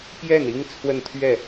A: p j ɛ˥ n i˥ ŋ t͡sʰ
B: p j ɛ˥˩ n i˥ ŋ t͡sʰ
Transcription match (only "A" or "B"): B